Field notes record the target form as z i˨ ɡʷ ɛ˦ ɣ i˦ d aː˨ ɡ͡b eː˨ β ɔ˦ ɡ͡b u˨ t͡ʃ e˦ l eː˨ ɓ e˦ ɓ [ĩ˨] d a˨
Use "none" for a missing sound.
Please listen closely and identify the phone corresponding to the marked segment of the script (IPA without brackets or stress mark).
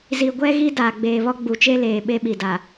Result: i˨